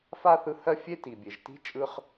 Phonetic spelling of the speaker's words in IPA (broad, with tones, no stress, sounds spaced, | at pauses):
f a˥ θ ɯ˦ h ɜ˥ fʲ e˥ t i˨ bʲ e˨ ʒ t i̤˥ t͡ʃʼ ɯ˥ χ